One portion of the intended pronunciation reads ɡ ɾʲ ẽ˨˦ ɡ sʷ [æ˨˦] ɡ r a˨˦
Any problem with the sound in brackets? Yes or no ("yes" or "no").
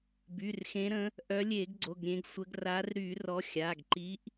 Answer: yes